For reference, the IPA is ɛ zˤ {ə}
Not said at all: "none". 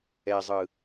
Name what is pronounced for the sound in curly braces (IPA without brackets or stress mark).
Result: ɯ